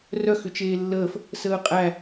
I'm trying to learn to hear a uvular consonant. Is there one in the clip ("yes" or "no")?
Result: yes